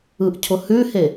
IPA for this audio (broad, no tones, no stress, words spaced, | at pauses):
ɯʔcʰʊhʉhe